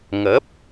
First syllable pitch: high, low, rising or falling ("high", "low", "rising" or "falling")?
rising